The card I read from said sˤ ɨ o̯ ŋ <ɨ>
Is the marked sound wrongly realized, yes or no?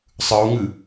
no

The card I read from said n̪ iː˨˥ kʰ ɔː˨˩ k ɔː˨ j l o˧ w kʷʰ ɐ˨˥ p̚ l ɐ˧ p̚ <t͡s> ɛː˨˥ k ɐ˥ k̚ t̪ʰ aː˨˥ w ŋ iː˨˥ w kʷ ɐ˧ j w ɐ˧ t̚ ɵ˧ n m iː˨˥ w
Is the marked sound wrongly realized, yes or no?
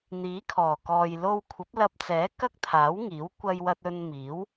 no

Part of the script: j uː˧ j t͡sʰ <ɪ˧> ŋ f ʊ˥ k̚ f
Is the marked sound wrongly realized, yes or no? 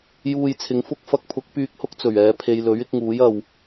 yes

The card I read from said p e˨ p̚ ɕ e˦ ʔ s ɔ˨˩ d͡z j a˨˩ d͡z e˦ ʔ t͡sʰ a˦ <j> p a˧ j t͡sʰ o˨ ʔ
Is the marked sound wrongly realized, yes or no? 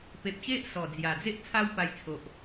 yes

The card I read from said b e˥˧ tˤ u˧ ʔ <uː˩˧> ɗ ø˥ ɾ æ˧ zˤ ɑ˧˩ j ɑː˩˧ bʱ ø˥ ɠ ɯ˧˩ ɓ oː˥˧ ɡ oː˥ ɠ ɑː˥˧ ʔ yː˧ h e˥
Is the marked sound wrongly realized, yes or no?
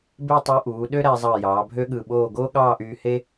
no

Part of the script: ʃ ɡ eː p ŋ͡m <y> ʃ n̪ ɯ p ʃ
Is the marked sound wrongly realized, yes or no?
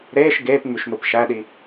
no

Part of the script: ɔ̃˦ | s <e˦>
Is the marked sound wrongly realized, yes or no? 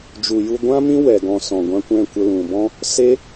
no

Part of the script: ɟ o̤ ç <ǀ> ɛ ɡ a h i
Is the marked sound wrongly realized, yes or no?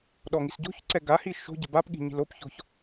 no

